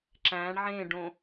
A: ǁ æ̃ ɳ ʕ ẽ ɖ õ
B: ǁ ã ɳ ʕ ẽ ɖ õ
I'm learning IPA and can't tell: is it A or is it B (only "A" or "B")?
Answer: A